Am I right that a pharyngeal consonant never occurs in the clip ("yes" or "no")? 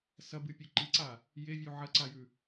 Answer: no